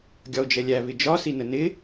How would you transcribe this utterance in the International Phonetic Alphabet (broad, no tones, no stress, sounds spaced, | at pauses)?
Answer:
ɡʲ ɒ o̯ d͡ʒ ɛ lʲ æ β ɪ d͡ʒ ɒ s i n ə n ɪ